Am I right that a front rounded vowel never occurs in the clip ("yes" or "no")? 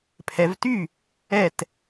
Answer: no